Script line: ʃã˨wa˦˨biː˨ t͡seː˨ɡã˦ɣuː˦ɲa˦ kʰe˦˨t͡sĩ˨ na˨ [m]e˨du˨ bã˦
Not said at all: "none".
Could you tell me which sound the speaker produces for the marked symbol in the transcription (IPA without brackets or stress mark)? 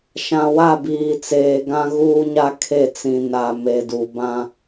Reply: m